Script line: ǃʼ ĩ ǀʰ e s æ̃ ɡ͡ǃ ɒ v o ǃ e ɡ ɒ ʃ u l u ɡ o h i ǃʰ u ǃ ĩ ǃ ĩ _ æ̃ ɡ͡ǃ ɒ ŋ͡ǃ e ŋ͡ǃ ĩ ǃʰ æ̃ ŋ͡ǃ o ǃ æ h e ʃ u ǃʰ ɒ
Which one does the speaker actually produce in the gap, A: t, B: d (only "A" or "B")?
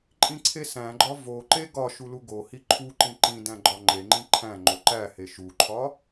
B